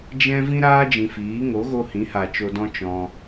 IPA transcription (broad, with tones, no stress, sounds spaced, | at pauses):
d͡ʒ ɛ̃˦ v ĩ˦ ɾ aː˦ d͡ʒ ĩ˨ f iː˨˦ ŋ o˨˦ ɣ o˧ h ĩ˨˦ h a˨ t͡ʃ o˧ d ɔ̃˦ t͡ʃ ɔ̃˧